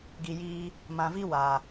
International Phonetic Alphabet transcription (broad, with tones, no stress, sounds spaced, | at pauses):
ɡ i˨ j iː˧ | m ã˨ v i˦ w a˨